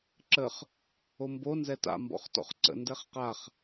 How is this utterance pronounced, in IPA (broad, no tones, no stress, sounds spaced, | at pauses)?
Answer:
ǁ ə χ | o m b o n z ɛ t a̰ m b ɔ̰ χ t ɔ̰ χ ǀ ə̰ n d ɛ χ q a χ